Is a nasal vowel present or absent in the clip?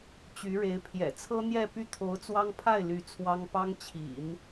absent